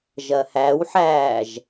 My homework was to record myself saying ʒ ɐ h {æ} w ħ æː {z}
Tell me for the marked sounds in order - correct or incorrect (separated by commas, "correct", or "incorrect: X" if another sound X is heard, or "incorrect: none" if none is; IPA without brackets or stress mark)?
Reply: correct, incorrect: ʒ